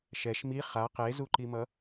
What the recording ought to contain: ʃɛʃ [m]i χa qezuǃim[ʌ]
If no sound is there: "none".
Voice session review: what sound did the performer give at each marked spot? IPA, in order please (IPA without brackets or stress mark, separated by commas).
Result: m, ʌ